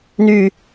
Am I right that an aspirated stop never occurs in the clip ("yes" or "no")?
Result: yes